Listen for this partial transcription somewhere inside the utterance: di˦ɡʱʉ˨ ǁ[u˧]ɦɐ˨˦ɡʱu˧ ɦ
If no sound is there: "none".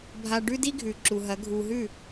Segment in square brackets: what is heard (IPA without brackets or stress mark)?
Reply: u˨